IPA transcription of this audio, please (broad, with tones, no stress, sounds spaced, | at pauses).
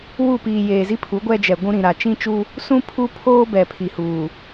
w u˦˨ p iː˨ j eː˨ z i˦ pʰ u˨˦ ɡʷ ɛ˦ d͡ʒ ɛ˨ ɡʷ ũ˦ ɾ ĩ˨ ɾ a˨ t͡ʃ ĩ˦ t͡ʃ uː˦ | s ũ˦ pʰ u˦ pʰ oː˦ b ɛ˨ pʰ i˨ h uː˨